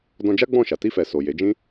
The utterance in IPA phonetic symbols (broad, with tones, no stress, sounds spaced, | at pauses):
d ɔ̃˧ d͡ʒ a˦ ɡ͡b ɔ̃˦˨ ʃ a˨ t i˧ f ɛ˨ s o˨ j e˨˦ d͡ʒ ĩ˦